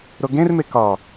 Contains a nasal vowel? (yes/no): yes